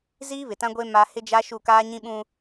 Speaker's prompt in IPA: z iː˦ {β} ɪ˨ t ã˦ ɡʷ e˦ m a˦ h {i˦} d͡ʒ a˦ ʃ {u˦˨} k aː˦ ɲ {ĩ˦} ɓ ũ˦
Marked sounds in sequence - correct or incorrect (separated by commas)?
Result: correct, incorrect, correct, correct